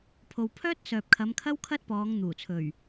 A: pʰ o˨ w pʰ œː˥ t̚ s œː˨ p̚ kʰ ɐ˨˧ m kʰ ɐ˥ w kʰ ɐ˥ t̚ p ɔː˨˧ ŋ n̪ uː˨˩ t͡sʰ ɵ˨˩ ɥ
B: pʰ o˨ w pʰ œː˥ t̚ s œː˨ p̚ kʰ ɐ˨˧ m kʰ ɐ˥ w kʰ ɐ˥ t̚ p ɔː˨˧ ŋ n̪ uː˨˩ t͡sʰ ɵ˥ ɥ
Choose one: A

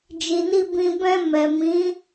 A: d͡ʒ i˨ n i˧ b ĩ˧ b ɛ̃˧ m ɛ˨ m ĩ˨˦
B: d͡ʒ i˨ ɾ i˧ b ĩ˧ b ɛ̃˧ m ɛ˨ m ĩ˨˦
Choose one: A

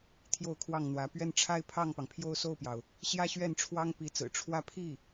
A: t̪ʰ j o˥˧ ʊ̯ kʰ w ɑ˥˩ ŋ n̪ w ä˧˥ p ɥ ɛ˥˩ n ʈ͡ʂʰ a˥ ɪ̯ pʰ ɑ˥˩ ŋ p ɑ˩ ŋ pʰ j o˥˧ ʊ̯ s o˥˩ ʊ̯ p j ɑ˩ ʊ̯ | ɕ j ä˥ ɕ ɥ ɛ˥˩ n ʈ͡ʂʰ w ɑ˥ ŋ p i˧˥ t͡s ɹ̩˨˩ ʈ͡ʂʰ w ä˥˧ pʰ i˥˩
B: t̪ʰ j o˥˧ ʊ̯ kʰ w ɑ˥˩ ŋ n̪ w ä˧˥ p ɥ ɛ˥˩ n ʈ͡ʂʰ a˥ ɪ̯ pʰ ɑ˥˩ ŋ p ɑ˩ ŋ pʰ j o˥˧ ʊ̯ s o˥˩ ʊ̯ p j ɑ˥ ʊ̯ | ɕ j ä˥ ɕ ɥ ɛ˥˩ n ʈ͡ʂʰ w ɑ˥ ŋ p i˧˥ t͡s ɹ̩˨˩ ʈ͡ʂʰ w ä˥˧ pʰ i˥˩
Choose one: A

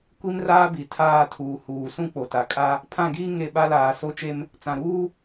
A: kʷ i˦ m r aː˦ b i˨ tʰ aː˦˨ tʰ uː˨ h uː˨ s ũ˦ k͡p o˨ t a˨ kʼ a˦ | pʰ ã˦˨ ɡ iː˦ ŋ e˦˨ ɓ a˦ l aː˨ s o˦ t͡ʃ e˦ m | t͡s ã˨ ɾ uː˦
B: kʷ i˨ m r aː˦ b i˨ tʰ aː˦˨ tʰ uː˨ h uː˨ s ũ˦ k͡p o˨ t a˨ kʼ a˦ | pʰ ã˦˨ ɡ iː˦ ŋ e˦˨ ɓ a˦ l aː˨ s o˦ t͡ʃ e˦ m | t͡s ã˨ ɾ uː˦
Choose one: A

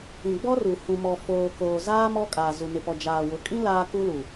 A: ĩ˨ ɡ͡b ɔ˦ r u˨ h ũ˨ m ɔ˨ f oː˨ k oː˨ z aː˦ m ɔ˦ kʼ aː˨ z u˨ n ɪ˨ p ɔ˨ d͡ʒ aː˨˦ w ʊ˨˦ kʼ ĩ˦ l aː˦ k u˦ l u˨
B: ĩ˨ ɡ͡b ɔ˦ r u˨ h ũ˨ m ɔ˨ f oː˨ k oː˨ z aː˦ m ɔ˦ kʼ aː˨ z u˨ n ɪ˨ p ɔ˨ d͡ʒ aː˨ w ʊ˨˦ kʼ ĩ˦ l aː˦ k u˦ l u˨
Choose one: B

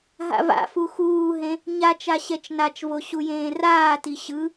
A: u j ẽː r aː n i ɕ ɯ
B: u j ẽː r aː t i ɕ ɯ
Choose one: B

